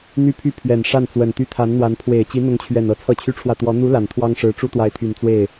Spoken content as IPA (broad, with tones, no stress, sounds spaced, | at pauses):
n̪ y˥˧ pʰ y˥˩ pʰ ɥ ɛ˨˩ n ʂ a˥˩ n t͡s w ə˨˩ n t̪ y˥˩ t̪ʰ a˧˥ n n̪ w a˧˥ n pʰ w e˨˩ ɪ̯ t͡ɕ i˧˥ n̪ ʊ˧˥ ŋ t͡ɕʰ ɥ ɛ˨˩ n ɤ˧˥ t͡sʰ ɤ˥˩ t͡ɕʰ y˥ ʈ͡ʂʰ w ä˥˩ t̪ w ɔ˧˥ n̪ u˧˥ l a˨˩ n t̪ʰ w ɑ˥ ŋ ʂ ɻ̩˧˥ ʈ͡ʂ u˥ t̪ w a˧˥ ɪ̯ t̪ʰ y˨˩ n t͡s w e˥˩ ɪ̯